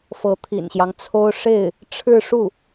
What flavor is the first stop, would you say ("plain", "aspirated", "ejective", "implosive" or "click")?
aspirated